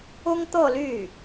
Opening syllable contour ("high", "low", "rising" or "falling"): high